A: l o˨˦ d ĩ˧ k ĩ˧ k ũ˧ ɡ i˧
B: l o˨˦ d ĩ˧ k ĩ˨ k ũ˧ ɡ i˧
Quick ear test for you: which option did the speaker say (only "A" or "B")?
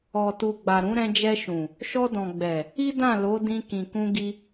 B